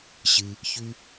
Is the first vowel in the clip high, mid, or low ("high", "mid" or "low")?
high